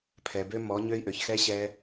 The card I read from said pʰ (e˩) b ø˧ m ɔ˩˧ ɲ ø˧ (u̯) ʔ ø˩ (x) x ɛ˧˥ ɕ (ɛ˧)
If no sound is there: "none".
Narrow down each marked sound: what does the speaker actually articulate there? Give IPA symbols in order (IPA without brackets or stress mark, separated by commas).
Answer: ɛ˩, i̯, ç, ɛ˧